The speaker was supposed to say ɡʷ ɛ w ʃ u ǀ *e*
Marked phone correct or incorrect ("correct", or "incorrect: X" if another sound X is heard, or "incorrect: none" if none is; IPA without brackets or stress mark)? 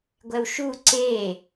correct